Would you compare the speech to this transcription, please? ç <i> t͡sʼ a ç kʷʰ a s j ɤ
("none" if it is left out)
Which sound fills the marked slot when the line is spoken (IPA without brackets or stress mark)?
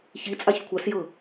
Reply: i